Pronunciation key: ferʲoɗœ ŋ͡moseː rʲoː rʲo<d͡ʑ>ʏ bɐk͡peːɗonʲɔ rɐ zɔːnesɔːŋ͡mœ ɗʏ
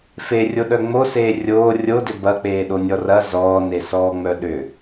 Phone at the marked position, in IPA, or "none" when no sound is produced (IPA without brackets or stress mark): d